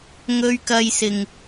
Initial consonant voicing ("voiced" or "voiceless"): voiced